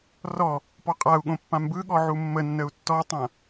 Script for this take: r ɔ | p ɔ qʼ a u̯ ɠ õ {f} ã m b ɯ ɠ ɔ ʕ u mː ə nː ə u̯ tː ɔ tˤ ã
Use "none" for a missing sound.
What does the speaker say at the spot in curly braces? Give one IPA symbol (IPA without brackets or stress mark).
pː